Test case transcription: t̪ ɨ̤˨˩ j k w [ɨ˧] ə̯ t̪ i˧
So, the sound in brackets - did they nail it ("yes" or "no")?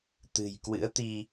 no